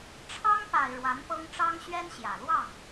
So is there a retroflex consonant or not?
yes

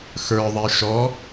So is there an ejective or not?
no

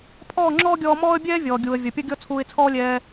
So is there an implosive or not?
no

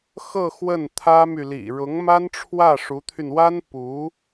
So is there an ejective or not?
no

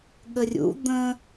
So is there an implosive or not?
yes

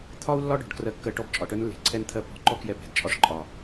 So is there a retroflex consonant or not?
yes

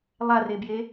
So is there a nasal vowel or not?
no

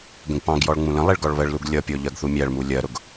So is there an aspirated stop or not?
no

